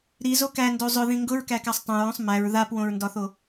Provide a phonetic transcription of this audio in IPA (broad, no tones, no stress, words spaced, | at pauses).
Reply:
ɾizo kændo zˤʊðĩ ŋɡʊɹkækasˤ tˤõɹõsˤ mæɹ ðapwõɹndɒθo